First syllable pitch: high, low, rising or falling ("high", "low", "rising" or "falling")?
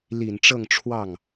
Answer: low